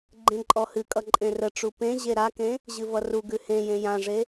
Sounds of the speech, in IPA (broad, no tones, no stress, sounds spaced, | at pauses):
ɡ͡ǃ ẽ ǃʼ ɔ h ɨ kʼ ʌ ǃʼ ẽ r ə ʈ͡ʂ u p ẽ ʑ e ɾ a k ẽ | ʑ ɨ v ʌ r u ɡ ʉ h ẽ j ẽ j ã ʐ e